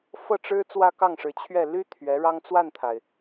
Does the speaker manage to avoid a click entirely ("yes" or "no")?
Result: yes